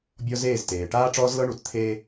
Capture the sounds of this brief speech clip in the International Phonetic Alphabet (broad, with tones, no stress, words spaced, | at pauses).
bʲɔ˦ zeː˦˨zteː˨ ʈaː˦ʈ͡ʂɔː˦zlɤ˦ ɳu˨t t̪ʰe˦